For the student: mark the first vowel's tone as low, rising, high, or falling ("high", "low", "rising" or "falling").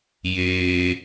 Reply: high